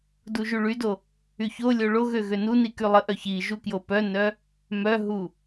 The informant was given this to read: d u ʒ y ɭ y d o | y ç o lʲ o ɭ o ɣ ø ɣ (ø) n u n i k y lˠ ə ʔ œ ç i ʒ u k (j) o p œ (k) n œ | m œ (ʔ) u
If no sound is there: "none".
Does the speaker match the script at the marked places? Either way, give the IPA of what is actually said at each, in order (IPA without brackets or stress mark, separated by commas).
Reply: ø, j, none, ɦ